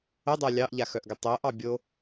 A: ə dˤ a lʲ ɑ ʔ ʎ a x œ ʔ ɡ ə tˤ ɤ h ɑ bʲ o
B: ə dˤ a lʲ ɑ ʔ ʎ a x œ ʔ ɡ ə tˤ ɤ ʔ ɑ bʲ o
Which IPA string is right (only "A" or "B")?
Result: B